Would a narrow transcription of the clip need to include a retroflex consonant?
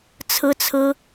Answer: no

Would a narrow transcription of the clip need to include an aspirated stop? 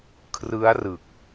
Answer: yes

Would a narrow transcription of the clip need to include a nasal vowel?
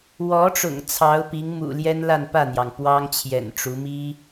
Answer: no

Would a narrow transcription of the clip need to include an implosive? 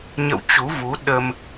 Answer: yes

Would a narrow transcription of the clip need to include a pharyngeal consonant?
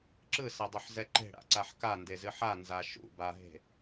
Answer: yes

